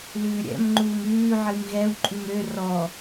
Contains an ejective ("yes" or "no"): yes